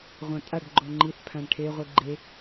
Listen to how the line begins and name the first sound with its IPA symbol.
ʁʷ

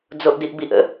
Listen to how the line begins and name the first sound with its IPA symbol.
d͡z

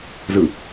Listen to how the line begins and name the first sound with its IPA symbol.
z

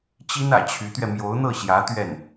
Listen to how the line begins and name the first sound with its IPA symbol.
t͡ɕ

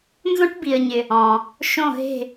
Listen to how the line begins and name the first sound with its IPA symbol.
n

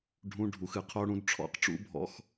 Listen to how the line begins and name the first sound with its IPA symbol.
ɖʱ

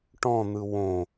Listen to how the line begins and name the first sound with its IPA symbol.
ʈ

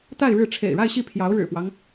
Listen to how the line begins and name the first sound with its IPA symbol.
t̪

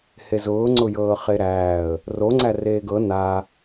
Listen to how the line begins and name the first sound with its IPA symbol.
h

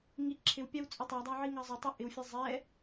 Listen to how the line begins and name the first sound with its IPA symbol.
ŋ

